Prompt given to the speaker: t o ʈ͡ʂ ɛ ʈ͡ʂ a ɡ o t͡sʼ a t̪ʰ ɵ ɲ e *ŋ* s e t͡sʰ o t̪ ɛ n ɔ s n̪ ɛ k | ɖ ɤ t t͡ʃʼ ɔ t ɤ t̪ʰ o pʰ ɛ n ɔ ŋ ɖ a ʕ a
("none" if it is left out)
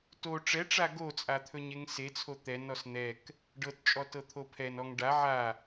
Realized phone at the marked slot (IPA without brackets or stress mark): ŋ